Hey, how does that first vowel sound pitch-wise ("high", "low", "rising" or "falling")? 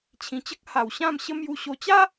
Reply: low